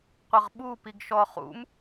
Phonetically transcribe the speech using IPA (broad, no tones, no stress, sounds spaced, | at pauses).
qʷ ɘ ʁ ɓ u p i ɡ ʃ ɔ χ ṵ m